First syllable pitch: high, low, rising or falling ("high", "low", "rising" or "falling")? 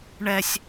high